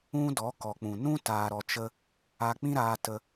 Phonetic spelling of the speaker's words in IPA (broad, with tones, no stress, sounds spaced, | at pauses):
ũ˦ d ɔ˨˦ k ɔ˨ k͡p ũ˨ n ũ˦ t aː˨ ɾ ɔ˨ t͡ʃ ə˧ | a˧ k͡p ĩ˦ ɾ aː˧ t ə˧